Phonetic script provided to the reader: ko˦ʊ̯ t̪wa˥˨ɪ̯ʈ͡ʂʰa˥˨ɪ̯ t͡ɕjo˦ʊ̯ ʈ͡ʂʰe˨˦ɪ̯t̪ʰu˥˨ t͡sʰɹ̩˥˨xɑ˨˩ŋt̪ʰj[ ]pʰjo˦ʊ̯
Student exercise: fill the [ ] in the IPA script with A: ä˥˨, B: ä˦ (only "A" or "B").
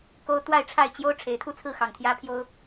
B